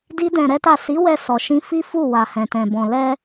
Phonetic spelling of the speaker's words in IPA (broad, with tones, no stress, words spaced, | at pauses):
di˦dɛ̃˧ɾɛ˦ta˦˨ si˨˦wɛ˧ sɔ˧ʃĩ˦ fi˦fu˦˨ wa˨hɛ̃˨tɛ̃˨ bɔ̃˨ lɛ˧